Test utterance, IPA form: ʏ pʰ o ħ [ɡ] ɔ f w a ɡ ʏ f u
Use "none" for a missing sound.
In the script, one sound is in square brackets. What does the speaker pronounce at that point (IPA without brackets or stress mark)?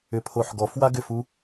ɡ